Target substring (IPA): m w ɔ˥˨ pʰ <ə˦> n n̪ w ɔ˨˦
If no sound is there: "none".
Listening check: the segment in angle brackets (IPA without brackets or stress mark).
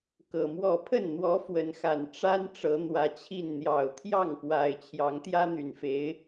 ə˥˨